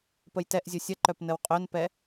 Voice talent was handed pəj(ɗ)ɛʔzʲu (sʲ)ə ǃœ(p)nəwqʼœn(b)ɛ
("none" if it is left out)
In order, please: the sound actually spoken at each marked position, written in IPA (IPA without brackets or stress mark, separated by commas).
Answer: t, sʲ, p, p